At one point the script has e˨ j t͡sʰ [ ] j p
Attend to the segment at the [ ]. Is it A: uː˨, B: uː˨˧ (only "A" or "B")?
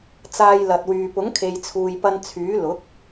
A